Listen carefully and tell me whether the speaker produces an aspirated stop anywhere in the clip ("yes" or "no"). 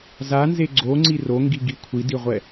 yes